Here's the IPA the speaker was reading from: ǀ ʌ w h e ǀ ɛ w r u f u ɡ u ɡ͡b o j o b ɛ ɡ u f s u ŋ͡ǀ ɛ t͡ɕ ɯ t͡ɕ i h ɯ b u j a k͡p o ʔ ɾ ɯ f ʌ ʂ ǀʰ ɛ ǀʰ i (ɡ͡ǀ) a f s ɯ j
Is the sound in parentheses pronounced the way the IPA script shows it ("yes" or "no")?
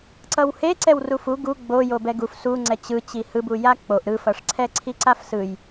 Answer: no